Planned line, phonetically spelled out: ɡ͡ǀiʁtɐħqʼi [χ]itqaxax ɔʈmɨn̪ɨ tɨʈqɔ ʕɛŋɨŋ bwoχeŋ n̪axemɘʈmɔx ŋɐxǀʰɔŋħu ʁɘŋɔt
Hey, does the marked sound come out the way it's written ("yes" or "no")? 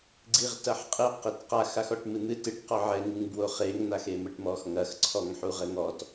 no